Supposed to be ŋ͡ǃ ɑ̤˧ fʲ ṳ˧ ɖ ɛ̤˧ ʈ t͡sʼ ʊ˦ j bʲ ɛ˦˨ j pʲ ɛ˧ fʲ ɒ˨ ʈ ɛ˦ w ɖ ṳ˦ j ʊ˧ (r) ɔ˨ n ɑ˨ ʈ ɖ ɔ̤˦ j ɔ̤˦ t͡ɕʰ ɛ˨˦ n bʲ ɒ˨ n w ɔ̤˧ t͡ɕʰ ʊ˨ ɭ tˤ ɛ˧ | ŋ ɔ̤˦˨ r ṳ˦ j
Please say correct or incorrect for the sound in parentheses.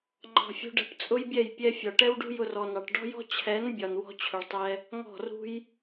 correct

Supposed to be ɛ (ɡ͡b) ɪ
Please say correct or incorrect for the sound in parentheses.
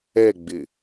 correct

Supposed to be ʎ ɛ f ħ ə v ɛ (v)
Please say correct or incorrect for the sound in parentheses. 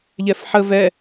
incorrect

